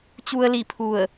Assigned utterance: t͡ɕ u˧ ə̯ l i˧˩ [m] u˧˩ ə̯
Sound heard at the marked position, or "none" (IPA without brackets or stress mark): pʰ